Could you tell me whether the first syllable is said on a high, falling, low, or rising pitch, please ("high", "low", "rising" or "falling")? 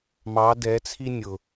rising